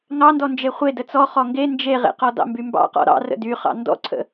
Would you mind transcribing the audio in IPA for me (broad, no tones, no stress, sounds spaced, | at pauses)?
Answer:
ŋ ɑ n d ɔ n d͡ʒ e χʷ e d ə t͡s ɔ χ ɔ ŋ ɡ e n d͡ʒ e ʁ ḛ q ɔ d ɑ̰ m b y m b ɑ̰ q ɔ̰ ɾ ɑ̰ r ə̰ d y χ ɑ̰ n d ɔ̰ ǀʰ ə̰